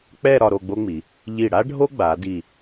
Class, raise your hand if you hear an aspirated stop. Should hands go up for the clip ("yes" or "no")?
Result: no